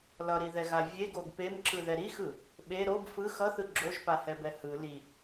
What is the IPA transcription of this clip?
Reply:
lʌɾiðɛɣa vʲeɡoɡ pemǁɯðɛ ɾixɯ | ɓe ɾob fɯ xʌθɯ ɡ͡ǁoʒpahɛbɛ hɯ li

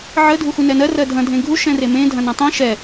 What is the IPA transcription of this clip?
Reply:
ʕə dʱuxunɛnɜ rɜdʱɐ̃ dʱẽɡʱu ʃɛ̃remẽ dʱɐ̃nɐ̃tˤẽ ʃɛ

